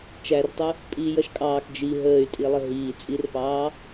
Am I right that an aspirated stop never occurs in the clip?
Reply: yes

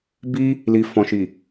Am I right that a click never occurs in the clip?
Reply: yes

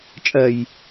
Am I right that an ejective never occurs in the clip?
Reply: no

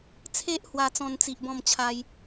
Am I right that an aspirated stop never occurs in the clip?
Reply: no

